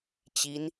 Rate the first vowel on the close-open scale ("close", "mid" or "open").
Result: close